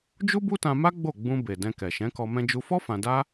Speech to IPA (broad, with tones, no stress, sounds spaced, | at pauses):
d͡ʒ u˦ b u˦ t ã˧ m a˦ ɡ͡b o˦˨ ɡ͡b ũ˧ b e˨ d ɛ̃˧ k ɛ˨ ʃ ɛ̃˨˦ k ɔ˧ m ɛ̃˧ d͡ʒ u˧ f ɔ˦ f ã˧ d a˦